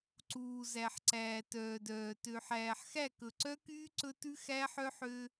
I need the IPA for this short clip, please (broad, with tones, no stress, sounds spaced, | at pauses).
ǀ uː˨ z æ˨ ħ ǀ æː˨ t œː˨ d œː˨ t ø˨ ħ æː˨ ħ x æ˦˨ k ɵ˨ ǀ œ˦ k yː˦ ǀ ɵ˦ t ʉ˦ x æ˦ ħ œ˦ ħ ø˦